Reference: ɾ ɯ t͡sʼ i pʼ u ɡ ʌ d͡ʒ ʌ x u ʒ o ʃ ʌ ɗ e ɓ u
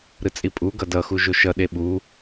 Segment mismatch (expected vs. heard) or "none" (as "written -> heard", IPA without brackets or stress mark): d͡ʒ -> d